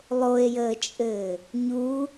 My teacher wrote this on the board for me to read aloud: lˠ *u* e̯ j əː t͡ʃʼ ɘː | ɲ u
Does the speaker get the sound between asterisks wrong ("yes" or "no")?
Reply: yes